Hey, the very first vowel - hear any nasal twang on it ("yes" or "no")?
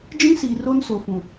yes